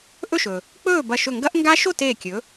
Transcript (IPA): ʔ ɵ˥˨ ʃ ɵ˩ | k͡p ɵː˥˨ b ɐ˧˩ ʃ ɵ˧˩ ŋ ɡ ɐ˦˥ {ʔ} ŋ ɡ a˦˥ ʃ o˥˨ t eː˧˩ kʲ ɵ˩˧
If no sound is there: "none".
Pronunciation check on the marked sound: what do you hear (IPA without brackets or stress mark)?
ʔ